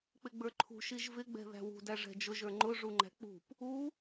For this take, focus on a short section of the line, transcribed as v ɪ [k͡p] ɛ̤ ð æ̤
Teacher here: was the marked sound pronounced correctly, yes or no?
no